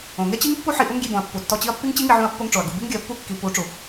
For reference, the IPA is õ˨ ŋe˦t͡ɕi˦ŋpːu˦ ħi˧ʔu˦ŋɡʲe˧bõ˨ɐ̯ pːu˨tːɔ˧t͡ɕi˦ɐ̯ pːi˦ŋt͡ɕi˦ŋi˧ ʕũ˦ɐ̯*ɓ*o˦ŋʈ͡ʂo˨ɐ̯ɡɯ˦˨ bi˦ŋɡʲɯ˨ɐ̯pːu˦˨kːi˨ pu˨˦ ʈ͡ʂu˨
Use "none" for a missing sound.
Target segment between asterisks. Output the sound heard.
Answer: pː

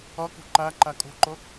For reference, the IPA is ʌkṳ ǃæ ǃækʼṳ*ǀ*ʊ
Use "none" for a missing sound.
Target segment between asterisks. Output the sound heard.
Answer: ǃ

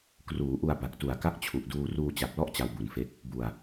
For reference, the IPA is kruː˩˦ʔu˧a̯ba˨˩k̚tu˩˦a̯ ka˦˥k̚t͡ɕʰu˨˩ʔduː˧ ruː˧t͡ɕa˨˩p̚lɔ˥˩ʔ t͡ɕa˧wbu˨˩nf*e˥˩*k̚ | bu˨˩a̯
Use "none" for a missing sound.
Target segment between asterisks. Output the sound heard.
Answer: e˦˥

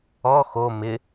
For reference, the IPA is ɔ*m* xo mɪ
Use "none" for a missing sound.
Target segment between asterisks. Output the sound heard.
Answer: none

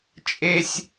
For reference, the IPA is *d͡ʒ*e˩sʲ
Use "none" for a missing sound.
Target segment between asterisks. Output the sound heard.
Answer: t͡ʃʼ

